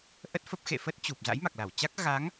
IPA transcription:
ʔ ə˦˥ t̚ f ə˦˥ p̚ x ḛ˧˨ f ə˦˥ t̚ t͡ɕ u˨˩ p̚ z a̰˧˥ j m a˨˩ k̚ l a˧˩ w t͡ɕ a˦˥ k̚ ɣ a˨˦ ŋ

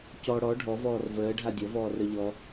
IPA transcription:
c ɔ ɽ ɔ ɖʱ ɔ v ɔː r v əː ɖʱ a dʲ ɔ v ɔː r œ ʎ ɔ

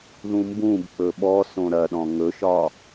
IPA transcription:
ð ũ m b ũ b k͡p ɵ ɓ ɔ s õ ɾ ɐ ɗ ɔ̃ ŋ ɵ ʃ ɒ

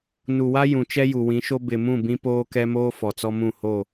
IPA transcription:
n u˨ w a˦ j ũ˨ t͡ʃ ɛ˦ j u˨ w ĩ˨˦ ʃ o˦ b ɪ˨ m ũ˦˨ b ĩ˦ p oː˦ k ɛ˦ m oː˦ f ɔ˨ t͡s ɔ˦ m ũ˦˨ h o˦˨

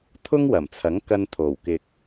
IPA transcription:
t̪ʰ ʊ˥ ŋ w ɐ˨˩ m t͡sʰ ɐ˨˥ ŋ k ɐ˧ n t̪ʰ o˨˩ w k ɪ˨ k̚

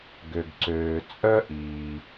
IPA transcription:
ɡ ø˩ ɡ ǀ øː˩ t͡sʼ œ˥ ʔ iː˩

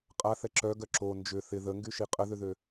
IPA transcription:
qʼ a θ ɛ ǁ œ ɡ œ ǁ o n d͡ʒ ʏ θ ɪ ð ə ŋ ɡ y ʃ i qʼ ə ð ʏ ð ø

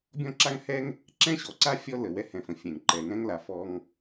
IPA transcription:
bʲ ɔ̃˥ ǁ a˥ ŋ h ɛ˥ ŋ | ǁ ɛ̃˥ ɕ ɔ˩ ǀ a˥ fʲ ɔ˥ l ə˩ w ɛ˥ h ɛ̃˩ f ə̃˩ fʲ ɛ̃˩ ŋ ǃ ɛ˩ ŋ ɛ̃˥ ŋ l a˩ f ɔ˧ ŋ

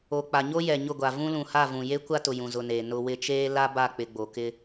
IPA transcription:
o˨ k͡p a˨ ɲ o˦ j ɛ˨ ɲ ʊ˦˨ ɡʷ a˨ v ũ˦ l ũ˨ h a˦˨ v ũ˨ j e˦ kʷ a˦ t ʊ˨ j ũ˨ z ʊ˨ n eː˨ n ʊ˨ w ɪ˦ t͡ʃ eː˦ l a˦ b a˦˨ k͡p ɪ˨ ɡ͡b o˨ k ɪ˦

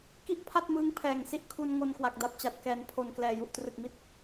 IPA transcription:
k i˥˩ ʔ pʰ a˥˩ t̚ m ɯː˦˥ ŋ pʰ ɛː˨˩ ŋ s i˥˩ ʔ kʰ u˧ n ŋ o˧ n k w a˨˩ k̚ d a˨˩ p̚ t͡ɕ a˨˩ t̚ k ɛː˩˦ n pʰ o˨˩ n k l ɛː˨˩ j u˨˩ ʔ t r ɯ˨˩ k̚ m i˦˥ t̚

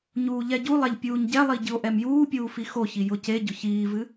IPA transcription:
ɲ uː ʎ ɛ ɟ u lˠ ɛ ʎ pʲ uː ɲ ɟ ɛ lˠ i ɟ ɨ o̯ ʔ ɛ m j uː pʲ uː f i x o ç i j ʊ c e ɟ ʊ ç iː v ɨ

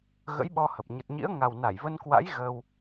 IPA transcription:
ɣ ə̰˧˥ j ɓ ɔ˧ h ə˨˩ p̚ ɲ ə˨˩ t̚ ɲ ḭ˧˥ ə̯ ŋ a˨˩ w n a˧˩ j v ə˧ n k w a̰˧˥ j ɣ əː˧ w

